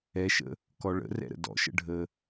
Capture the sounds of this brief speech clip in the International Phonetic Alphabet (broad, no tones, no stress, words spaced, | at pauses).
ɛʃə̰ | kɔɭə̰rɛ̰ɾə̰ dɔ̰ʃə̰ɖʱə